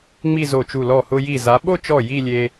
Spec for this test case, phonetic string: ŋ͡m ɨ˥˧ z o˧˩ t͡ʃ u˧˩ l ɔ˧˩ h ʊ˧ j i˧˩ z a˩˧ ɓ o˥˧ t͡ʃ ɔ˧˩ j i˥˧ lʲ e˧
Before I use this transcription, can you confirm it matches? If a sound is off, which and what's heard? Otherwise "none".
ɨ˥˧ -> i˥˧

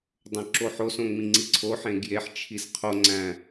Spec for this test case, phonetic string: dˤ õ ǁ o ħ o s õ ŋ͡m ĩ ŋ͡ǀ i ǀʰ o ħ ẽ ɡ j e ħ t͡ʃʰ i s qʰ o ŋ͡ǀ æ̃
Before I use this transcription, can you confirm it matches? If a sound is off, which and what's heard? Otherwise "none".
none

